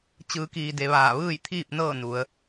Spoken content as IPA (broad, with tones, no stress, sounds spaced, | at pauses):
t͡ɕ ɯː˩˧ k iː˩ d e˩ ʋ aː˧˩ ʋ ɯː˥˨ j t̪ʰ iː˥˨ p̚ n ɤː˥˨ n u˩˧ ə̯